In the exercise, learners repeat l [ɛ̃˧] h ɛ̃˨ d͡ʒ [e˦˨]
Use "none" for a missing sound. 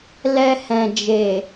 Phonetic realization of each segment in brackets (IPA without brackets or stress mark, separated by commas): ɛ˧, e˨